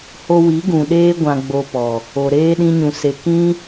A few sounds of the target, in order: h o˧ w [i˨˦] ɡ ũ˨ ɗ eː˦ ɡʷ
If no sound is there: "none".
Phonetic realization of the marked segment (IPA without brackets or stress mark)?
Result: i˨˦